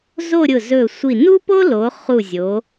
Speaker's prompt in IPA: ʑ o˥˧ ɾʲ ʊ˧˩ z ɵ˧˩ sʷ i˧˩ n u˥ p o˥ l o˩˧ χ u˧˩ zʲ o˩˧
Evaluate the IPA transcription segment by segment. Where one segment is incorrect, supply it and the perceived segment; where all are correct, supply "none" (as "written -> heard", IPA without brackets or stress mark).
ʑ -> z